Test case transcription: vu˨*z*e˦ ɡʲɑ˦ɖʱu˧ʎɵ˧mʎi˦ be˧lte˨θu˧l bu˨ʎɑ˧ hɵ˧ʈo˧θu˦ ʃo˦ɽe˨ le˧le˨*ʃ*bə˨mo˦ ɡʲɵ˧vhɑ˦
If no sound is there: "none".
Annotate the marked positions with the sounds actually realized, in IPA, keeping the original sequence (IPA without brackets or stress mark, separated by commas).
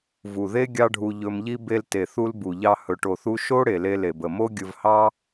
ð, none